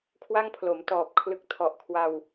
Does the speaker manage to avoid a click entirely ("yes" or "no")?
yes